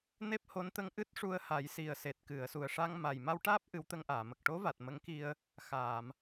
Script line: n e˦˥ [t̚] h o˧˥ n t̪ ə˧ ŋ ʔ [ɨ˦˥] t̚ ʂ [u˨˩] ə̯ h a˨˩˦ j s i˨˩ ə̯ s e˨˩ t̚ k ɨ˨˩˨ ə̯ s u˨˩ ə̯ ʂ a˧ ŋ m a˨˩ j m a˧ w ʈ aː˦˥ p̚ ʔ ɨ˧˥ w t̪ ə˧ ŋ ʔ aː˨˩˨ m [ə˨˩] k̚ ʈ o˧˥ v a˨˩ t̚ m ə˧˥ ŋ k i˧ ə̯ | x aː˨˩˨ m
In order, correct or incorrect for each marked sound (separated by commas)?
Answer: incorrect, correct, incorrect, correct